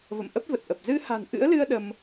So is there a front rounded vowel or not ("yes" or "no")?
no